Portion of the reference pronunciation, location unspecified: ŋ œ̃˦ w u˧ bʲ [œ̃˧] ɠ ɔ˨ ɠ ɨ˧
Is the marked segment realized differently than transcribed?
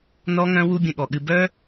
yes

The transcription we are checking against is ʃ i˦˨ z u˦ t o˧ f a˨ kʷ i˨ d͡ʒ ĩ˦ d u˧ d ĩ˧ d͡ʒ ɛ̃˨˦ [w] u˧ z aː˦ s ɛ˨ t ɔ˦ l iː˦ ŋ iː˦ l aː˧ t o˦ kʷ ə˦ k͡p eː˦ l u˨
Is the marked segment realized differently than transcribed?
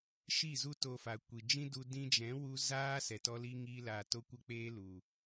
no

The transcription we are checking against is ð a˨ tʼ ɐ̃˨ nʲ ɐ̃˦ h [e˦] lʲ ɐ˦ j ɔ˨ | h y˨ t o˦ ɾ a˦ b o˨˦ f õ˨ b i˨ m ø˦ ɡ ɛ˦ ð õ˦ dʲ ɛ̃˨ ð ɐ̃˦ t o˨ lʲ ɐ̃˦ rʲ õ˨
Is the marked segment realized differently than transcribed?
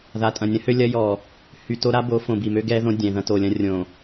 yes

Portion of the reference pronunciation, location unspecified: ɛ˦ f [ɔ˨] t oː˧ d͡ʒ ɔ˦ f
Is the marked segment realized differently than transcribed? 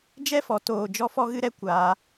yes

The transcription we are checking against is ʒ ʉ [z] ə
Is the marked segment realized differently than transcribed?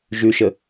yes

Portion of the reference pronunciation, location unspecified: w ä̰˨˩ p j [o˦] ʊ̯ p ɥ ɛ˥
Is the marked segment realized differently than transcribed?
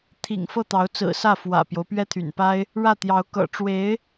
no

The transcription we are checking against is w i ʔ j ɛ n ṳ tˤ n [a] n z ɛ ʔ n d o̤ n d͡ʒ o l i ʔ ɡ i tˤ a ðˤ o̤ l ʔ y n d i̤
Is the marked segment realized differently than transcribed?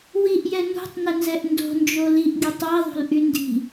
yes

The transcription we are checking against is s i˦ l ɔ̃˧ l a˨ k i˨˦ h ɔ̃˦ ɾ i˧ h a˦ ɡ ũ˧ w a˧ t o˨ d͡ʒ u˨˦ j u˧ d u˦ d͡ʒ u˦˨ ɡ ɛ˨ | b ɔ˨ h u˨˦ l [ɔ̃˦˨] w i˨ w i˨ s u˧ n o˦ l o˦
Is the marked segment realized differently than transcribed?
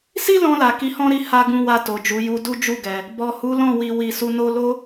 no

